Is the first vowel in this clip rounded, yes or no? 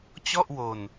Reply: yes